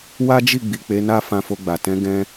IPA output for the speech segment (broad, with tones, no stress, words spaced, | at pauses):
wa˦d͡ʒi˦˨ ɡ͡bi˨k͡pe˨˦na˦ fã˧fo˧ɡ͡ba˨ tɛ̃˨˦ ɡɛ̃˦